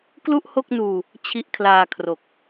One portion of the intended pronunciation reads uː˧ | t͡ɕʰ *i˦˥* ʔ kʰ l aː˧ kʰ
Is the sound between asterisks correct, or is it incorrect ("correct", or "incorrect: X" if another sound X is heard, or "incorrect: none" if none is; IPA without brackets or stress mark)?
correct